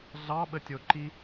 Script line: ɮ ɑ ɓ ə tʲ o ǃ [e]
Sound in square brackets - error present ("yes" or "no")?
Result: yes